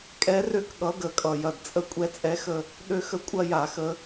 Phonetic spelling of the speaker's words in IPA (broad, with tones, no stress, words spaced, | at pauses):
kʼɛ˨˦rø˦˨k ɠʌ˨˦ɡə˨˩ kʼʌ˨˩jɐ˨˩dt͡sʼə˦ kʷʼɛ˦t͡sʼɛ˦xə˦˨ | ɗø˦xə˦ kʷʼɐ˦ ja˧˩˧xə˨˦